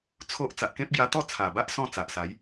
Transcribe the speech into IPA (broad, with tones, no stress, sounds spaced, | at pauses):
t͡sʰ o˦ ʔ t͡s a˨ ʔ k ẽ˦ p̚ ɡ j a˧ t̪ ɔ˥˧ t͡sʰ a˨˩ b a˦ ʔ s ɔ̃˥˧ t͡s a˨ ʔ s a˨˦ j